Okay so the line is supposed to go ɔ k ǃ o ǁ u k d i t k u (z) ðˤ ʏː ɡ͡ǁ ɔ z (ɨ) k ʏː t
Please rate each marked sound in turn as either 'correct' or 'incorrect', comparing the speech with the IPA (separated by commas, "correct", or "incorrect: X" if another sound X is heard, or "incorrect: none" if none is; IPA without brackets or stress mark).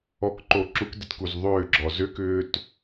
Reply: correct, incorrect: ʏ